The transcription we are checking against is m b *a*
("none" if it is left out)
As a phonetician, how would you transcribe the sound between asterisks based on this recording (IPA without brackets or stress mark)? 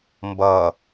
ʌ